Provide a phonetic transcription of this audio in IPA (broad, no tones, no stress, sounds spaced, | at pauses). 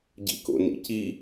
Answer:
ɟ ḭ k o̰ n ḭ c i